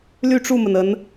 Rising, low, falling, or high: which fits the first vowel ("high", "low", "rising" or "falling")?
falling